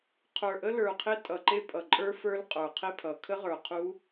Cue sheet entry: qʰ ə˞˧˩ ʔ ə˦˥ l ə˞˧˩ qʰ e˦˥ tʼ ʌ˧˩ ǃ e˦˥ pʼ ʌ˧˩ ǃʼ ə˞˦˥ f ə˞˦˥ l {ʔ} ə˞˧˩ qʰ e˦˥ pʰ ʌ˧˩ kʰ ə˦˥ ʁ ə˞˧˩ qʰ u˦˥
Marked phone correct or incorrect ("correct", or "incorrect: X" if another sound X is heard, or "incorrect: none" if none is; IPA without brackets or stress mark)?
incorrect: qʼ